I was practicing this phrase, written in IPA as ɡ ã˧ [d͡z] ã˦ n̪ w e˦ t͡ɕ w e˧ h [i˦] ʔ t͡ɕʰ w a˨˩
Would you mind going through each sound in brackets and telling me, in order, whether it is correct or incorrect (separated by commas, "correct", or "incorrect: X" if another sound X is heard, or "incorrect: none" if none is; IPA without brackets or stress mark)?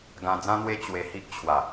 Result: correct, correct